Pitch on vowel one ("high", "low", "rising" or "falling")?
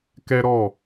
high